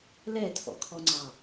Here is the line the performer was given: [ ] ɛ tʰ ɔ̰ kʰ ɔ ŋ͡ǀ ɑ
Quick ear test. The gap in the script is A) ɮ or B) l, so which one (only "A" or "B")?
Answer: B